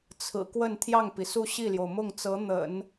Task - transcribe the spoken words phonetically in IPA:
t͡sʰ ɹ̩˨˩ k w ə˥˧ n t̪ʰ j ɑ˥˩ ŋ p i˩ s u˥˧ ɕ i˥˩ l j o˩ ʊ̯ m ʊ˥˩ ŋ t͡s ɤ˧˥ n̪ ə̰˨˩˦ n

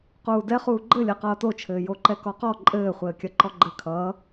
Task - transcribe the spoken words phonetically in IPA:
q uː d ɛ χ uː ɡ͡ǃ ɘ lʲ ɛ q ʌː t o t͡ʃʰ ɘː j o ǃ ɛ k ɔ q ɔ ǃʼ ɘː χʷ ɘː kʲ ɐ ǃ ɔ ɡ͡ǃ ɘ kʰ ʌː

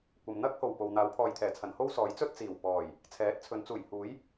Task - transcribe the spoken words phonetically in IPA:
kʷ ɐ˨ m n̪ ɐ˥ k̚ h o˨˩ w p o˨ w n̪ aː˨˥ w pʰ ɔː˨ j t̪ʰ ɛː˨˩ t͡sʰ ɐ˨˩ n h o˥ w s ɔː˨˥ j t͡s ɵ˥ t̚ t͡s iː˨˩ w p ɔː˨˩ j | t͡sʰ ɛː˨˥ t̚ t͡sʰ ɵ˨˥ n t͡s uː˨˩ j h uː˨˥ j

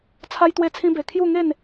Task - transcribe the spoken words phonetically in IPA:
t͡sʰ a˦ j t̪ w e˥˧ t͡sʰ ĩ˦ b e˧ kʰ j u˥˧ ŋ e˥˧ n

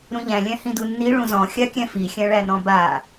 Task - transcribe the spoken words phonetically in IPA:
ɾ ũ ʎ æ̃ lʲ æ̃ h ĩ d u nː i ɭ ũ z ɔ̃ xʲ a kʲ æ̃ f i xʲ æ̃ ɭ æ n ɔ̃ b a

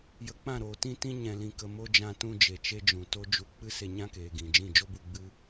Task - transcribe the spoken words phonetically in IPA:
j ə˧ k͡p ã˦˨ ɾ oː˨ t ĩ˦ t ĩ˦ ɲ ɛ̃˨ l ĩ˨ k ə˨ m o˧ d͡ʒ ã˧ t ũ˧ d͡ʒ e˨ t͡ʃ e˦ d͡ʒ ũ˨ t o˦ d͡ʒ u˧ k͡p ɨ˦ s e˧ ɲ ã˦ k eː˨ ɡ ĩ˨ d͡ʒ ĩ˦˨ d͡ʒ o˦ b u˧ ɡ͡b ɨ˦

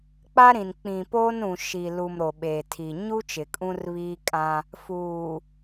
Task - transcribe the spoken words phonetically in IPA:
k͡p a˦ ɾ ĩ˨ n k͡p ĩ˨ p oː˦ n ũ˨ ʃ i˨ l u˨ m ɾ o˨ ɓ eː˨ tʰ i˨ ɲ u˦ t͡ʃ ɪ˨ kʼ ũ˦ r β iː˦ kʼ ã˦ | f uː˨

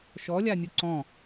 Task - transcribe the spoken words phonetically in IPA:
ʃ ɔ lʲ a nʲ u ǀ ɔ̃

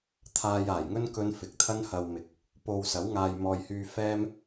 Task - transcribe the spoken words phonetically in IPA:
t̪ʰ aː˧ j aː˨˩ j ŋ ɵ˥ n k ɵ˥ n f ɪ˨˥ k̚ t̪ʰ ɐ˥ n h ɐ˧ w m ɪ˨˥ k̚ | p o˧ w s ɐ˨˥ w ŋ aː˨ j m ɔː˨ j h yː˧ f ɛː˥ m

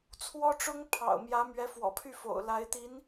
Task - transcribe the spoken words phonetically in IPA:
t͡sʰ w ɔ˥ ʈ͡ʂ ʊ˥ ŋ pʰ ɑ̰˨˩ ʊ̯ m j ä˧˥ m ɥ ɛ˧˥ f w ɔ̰˨˩ pʰ y˥˩ f o̰˨˩ ʊ̯ l a˧˥ ɪ̯ t̪ i˧˥ n

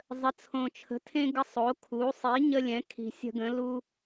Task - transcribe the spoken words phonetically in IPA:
zˤ ə˩˥ t͡sʰ õ˨˩ t͡ʃʰ ə̤˩˥ tʰ ẽ˦ ɡ ə˦ sˤ o˩˥ kʰ u˩˥ sˤ i˩˥ ɲ ə˦ lʲ ɛ̃˩˥ kʰ i̤˨˩ sʲ ə̤˦ ɡ ə̃˩˥ l u˦

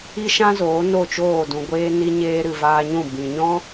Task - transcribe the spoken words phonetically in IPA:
i˦ ʃ ã˦ z oː˨˦ n o˦˨ t͡ʃ oː˦˨ d ũ˨ ɡʷ eː˦ n i˦ ɲ eː˧ ɾ ɨ˨ v aː˧ ɲ ũ˦˨ b ĩ˨ ɲ ɔ̃˦

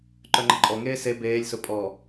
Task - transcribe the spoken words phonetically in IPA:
ǃ œ ŋ͡ǃ ə ǃʼ ɔ ŋ eː s e b eː lʲ s ʊ pʼ ɔ

